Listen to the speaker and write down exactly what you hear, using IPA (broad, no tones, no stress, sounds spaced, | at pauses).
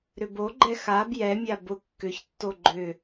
ɾ ʏ b o ɡ͡ǃ ɛ x a b j ɛ mʲ a b ʊ kː ʏ ç tː o ɡ͡ǃ ʏ